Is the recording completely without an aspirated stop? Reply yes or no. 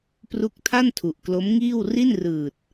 no